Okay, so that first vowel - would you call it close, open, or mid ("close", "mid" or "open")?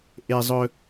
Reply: mid